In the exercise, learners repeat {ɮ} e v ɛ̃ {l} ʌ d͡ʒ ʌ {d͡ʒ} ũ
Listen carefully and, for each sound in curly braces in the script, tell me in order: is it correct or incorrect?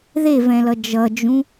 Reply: incorrect, correct, correct

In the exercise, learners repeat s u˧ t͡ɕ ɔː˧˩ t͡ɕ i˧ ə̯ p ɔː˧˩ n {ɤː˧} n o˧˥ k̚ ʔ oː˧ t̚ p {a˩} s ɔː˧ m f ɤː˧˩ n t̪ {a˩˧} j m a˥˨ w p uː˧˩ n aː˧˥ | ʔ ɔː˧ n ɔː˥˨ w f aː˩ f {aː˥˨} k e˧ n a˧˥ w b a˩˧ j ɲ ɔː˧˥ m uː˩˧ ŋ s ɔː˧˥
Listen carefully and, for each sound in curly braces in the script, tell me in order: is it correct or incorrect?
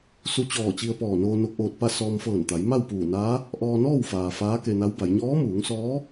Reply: incorrect, incorrect, correct, incorrect

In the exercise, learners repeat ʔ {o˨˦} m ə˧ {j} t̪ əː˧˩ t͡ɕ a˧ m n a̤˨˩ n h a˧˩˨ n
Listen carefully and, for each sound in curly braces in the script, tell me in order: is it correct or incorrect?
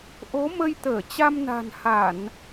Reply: correct, correct

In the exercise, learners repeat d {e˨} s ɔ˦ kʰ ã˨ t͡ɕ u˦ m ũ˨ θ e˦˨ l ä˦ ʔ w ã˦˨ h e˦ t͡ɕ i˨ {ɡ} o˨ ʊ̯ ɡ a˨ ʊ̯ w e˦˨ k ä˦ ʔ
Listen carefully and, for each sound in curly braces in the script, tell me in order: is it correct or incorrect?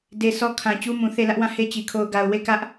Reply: correct, incorrect

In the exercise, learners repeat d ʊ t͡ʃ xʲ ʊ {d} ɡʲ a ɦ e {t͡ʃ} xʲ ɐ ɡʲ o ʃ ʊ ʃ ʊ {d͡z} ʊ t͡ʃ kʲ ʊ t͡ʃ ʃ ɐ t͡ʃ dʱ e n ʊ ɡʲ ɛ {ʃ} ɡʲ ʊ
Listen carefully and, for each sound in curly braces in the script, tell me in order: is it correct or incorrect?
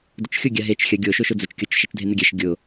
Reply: incorrect, correct, correct, correct

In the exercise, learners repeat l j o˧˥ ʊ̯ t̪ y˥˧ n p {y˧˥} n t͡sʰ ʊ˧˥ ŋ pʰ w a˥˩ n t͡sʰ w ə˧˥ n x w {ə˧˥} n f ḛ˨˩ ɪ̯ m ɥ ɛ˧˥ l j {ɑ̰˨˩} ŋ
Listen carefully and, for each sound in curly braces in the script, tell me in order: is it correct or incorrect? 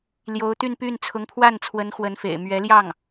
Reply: incorrect, correct, incorrect

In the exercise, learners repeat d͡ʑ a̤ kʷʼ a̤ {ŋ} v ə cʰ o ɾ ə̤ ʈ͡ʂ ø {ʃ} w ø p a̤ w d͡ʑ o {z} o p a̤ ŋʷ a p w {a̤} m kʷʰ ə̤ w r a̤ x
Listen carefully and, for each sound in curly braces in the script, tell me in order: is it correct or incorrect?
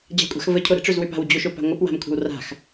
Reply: incorrect, incorrect, incorrect, correct

